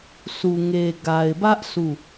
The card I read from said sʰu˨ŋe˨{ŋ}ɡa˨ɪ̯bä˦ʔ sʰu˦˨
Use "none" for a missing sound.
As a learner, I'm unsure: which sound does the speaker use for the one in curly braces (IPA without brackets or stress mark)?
none